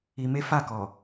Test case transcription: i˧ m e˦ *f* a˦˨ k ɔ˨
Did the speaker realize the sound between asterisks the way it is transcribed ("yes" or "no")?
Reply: yes